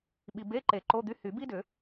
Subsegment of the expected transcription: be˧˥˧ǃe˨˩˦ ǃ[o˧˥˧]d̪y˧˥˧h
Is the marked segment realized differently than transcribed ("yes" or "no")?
no